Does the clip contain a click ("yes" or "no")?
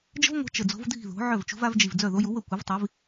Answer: no